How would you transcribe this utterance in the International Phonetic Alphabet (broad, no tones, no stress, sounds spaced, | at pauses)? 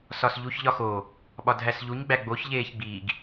s ɒ s ʎ u ç ʎ ɒ x o | ɓ ɒ dʱ æ s ʎ u ɲ ɡ͡b æ ɡ͡b o ç ʎ eː ç ɡ͡b i ɡ